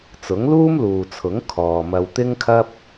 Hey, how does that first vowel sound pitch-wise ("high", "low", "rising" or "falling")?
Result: rising